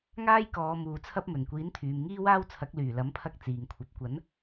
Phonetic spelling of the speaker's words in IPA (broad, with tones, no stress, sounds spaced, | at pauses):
ŋ aː˥ j k ɔː˨˧ m uː˨ t͡sʰ ɐ˥ p̚ m ɵ˨˩ n kʷ iː˨˥ n t̪ʰ yː˨ m ŋ iː˥ w aː˥ w t͡sʰ ɐ˨˥ k̚ l yː˨˩ l ɐ˨˥ m pʰ ɐ˧ k̚ t͡s iː˨ ŋ kʷʰ ɐ˨˥ p̚ kʷ ɐ˨˥ n